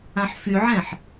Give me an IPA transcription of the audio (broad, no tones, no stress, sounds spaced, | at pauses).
ã ħ f y ʕ ɛ̃ ħ